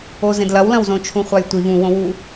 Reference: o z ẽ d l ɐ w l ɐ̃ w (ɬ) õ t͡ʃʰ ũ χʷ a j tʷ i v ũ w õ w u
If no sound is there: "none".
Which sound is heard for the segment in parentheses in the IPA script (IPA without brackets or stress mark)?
z